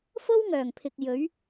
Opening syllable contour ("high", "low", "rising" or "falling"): high